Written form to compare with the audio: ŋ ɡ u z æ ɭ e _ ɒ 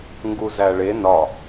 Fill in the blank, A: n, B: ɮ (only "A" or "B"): A